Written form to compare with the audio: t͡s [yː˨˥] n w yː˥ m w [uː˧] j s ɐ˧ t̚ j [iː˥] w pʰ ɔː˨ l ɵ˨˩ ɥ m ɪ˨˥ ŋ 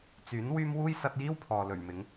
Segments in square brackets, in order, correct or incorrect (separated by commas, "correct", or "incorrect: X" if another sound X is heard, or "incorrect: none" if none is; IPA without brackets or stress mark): correct, incorrect: uː˥, correct